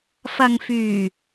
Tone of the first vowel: low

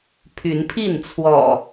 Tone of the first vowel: rising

